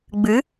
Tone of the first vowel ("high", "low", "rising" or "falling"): rising